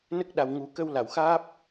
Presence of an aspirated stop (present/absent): absent